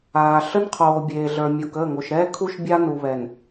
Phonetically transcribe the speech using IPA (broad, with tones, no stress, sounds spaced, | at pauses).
aː˨ ɬ ə˦ n qʰ oː˨ bʲ eː˨ ɮ ə˞˨ mʲ o˨ k əː˦˨ ŋ o˨ ʃ ɾ ɛː˦ kʰ u˦ ʃ bʲ a˦ n u˨ β ɛ˨ n